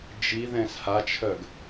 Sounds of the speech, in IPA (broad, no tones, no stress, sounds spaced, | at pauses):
d͡ʒ i ð ɛ̃ s h a t͡ʃʰ œ ɡ